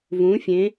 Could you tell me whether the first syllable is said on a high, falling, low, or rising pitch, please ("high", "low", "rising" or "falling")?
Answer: rising